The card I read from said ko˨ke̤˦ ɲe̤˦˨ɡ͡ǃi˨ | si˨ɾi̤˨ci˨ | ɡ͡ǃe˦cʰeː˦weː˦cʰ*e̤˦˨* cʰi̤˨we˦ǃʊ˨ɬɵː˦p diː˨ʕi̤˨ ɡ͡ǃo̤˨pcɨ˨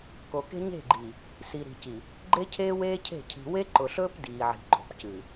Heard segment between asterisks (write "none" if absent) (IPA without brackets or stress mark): e̤˦˨